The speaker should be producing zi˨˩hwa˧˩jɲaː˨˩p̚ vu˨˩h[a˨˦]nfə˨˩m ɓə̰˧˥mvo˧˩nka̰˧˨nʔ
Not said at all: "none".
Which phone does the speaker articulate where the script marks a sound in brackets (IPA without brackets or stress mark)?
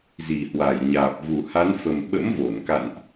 a˨˦